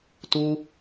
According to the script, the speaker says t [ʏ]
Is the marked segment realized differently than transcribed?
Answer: yes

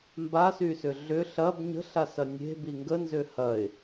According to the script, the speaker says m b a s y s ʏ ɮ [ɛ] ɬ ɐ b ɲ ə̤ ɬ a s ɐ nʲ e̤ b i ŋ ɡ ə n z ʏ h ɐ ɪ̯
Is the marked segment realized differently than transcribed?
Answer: yes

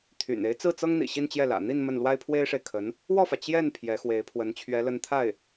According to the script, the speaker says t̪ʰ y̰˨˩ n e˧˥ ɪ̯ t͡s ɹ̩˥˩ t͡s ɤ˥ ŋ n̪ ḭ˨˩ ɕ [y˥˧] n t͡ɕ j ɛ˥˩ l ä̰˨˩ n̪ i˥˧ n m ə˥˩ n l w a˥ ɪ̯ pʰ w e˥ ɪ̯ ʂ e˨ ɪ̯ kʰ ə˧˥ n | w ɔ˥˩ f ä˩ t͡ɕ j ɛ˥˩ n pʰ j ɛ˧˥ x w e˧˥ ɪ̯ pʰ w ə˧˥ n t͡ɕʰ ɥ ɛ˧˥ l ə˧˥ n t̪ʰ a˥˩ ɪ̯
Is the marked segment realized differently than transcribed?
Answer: yes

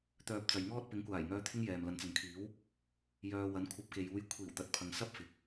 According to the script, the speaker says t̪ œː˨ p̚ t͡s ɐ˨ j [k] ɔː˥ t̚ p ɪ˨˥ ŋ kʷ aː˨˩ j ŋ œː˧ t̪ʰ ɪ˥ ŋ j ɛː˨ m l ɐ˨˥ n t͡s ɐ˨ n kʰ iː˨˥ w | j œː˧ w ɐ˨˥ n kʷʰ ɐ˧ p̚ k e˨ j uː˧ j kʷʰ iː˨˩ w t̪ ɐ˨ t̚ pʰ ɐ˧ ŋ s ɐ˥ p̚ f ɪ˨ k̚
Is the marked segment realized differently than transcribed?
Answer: yes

